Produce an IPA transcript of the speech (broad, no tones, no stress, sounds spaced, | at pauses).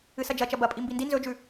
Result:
ɨ s ɐ d͡ʒ ɐ t͡ʃ ɐ b ɐ pʼ i m b i n d i n z ɵ d͡ʒ ʉ